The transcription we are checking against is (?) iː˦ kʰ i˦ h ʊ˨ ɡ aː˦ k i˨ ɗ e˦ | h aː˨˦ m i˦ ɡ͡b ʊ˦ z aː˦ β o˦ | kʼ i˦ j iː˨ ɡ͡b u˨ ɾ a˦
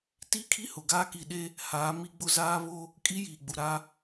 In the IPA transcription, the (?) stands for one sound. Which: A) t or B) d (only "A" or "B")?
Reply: A